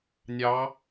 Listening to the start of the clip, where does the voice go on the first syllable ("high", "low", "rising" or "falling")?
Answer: rising